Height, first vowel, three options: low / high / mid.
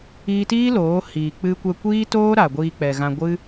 high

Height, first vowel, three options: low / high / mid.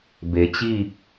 mid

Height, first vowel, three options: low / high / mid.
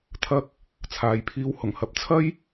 low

